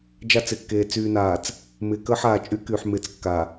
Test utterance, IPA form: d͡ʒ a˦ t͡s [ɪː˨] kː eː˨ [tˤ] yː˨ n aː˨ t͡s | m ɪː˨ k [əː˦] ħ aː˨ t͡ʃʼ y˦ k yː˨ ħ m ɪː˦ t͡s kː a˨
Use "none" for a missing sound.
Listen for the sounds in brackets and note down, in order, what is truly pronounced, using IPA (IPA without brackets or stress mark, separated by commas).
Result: ɪː˨, t͡s, əː˦